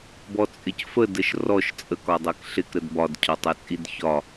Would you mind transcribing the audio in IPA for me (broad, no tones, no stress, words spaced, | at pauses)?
bɔt͡sʼɪcfə dəʃrɔʃ t͡sʼəkɒdˤɛk ɬɪkɾəd bɒdcʰɒtˤɛt͡sʼid çɒ